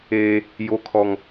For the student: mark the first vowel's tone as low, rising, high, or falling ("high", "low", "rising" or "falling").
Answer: high